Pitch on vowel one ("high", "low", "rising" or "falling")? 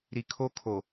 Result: low